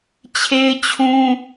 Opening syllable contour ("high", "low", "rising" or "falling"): high